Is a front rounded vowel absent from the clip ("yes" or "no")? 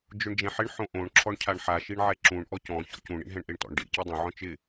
yes